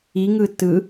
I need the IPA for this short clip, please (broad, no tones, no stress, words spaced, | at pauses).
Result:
iŋɯ tɯ